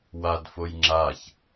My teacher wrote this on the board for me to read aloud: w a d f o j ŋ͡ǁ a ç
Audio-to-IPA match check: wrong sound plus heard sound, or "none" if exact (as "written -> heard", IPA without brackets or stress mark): none